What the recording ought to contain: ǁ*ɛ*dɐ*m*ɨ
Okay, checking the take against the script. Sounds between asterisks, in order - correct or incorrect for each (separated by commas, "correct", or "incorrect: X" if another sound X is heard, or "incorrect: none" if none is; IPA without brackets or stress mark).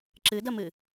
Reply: incorrect: ɨ, correct